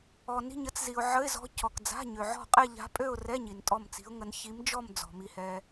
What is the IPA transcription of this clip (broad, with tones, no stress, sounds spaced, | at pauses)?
ɔ˨ n i̤˥˧ ɲ ə˧˥ t͡s z i˨ ʊ̯ ʕ ə˧˥˧ ɪ̯ z ɔ̤˧˥ cʰ ɔ˨ k d͡z a̤˧˥˧ ɲ ø˨ ʕ ɔ̤˥˧ qʼ ɛ˥˧ ʎ a̤˧˥ pʼ ø˥˧ ʊ̯ r ɛ˧˥˧ ɲ i˨ n tʼ ɔ˥˧ m t͡s i̤˧˥ ʊ̯ ŋ ə˧˥ n ç i˧˥ m d͡ʒ ɔ˥˧ m d͡z ɔ̤˨ m i˨ h ɛ˨